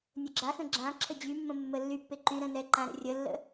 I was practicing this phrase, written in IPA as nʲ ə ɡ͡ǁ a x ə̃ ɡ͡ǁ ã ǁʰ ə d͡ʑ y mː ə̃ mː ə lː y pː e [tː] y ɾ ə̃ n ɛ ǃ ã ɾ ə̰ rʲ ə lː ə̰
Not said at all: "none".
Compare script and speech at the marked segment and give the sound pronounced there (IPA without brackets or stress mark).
ǃ